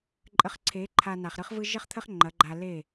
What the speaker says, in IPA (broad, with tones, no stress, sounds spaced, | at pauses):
ǃʼ ə˧ χ ǀʰ e˩˥ ǃʰ a˧ n a˩ χ ɾ ɯ˥ χ v ɯ˥ ʒ ə˥ χ t̪ʰ ə˥ χ ŋ͡ǃ ɐ˩˥ ɡ͡ǃ a˧ l e˥˩